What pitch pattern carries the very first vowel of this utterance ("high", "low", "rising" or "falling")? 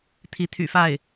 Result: rising